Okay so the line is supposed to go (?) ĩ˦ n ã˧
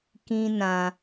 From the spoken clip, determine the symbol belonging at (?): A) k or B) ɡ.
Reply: A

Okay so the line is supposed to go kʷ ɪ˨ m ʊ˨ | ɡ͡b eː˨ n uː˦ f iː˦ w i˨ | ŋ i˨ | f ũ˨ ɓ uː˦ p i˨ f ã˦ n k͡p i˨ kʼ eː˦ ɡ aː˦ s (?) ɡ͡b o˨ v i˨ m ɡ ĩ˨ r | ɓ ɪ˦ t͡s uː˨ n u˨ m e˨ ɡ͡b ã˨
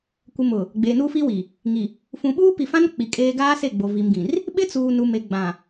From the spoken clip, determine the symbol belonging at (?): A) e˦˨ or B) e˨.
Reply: A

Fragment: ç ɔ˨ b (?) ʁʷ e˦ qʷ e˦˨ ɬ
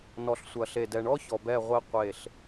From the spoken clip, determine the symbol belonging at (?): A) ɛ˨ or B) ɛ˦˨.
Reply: B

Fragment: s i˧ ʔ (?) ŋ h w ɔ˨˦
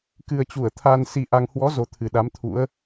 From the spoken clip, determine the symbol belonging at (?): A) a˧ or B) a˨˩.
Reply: A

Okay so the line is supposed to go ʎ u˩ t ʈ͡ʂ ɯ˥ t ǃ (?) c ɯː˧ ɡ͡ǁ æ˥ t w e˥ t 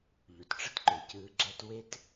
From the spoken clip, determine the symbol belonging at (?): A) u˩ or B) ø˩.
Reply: B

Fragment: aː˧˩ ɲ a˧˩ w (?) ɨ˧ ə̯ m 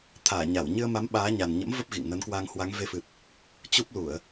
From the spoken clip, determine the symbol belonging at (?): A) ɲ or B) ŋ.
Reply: A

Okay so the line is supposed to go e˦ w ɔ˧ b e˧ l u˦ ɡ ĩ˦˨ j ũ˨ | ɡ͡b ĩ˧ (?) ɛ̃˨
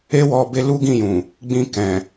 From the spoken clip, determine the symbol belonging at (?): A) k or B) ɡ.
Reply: A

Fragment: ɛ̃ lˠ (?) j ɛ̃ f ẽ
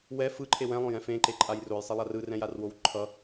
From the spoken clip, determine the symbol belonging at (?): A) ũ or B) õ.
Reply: B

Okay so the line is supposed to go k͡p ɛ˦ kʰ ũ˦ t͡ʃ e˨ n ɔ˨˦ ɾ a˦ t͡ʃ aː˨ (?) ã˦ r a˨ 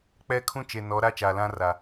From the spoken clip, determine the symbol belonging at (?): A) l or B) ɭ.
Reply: A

